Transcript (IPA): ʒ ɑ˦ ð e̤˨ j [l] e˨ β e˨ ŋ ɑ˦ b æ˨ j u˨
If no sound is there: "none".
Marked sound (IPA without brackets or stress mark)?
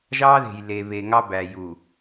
l